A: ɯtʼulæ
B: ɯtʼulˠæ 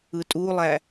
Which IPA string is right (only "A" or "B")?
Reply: B